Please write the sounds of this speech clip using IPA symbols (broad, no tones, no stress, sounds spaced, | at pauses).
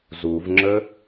z u v ŋ͡ǁ ə